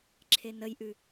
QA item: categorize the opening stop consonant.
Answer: click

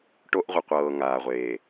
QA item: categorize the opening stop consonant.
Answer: plain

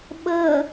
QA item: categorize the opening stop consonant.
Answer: implosive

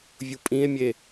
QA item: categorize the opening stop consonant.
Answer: ejective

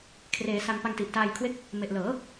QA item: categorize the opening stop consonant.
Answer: aspirated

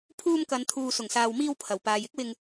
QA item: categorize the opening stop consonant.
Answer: aspirated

